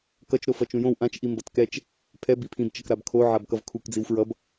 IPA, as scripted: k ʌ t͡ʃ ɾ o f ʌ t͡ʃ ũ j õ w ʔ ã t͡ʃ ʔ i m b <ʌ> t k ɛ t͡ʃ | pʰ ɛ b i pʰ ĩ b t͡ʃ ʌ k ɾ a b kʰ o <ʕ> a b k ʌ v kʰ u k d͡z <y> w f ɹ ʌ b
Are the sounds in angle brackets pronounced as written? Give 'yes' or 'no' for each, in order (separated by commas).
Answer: yes, yes, no